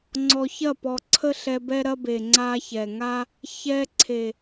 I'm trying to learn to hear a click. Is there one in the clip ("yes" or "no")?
yes